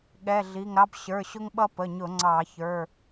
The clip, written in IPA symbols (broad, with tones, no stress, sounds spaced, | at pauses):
ɠ ɛ˩˧˩ ɮ i˩˧˩ ŋ ɾ ɑ˧˥ b ɕ ə˞˩˧˩ ɕ ʊ˧ ŋ ɓ ʌ˧ p ə˩˧˩ ɲ ʊ˧˩˧ ŋ͡ǀ ɑ˧˩˧ ç ə˞˩˧˩